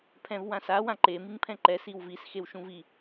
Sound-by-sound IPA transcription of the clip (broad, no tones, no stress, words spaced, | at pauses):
pʰɛ̃vwãsa wãǃe miŋpʰɛ̃ǃɛ siwvis xewʃũvi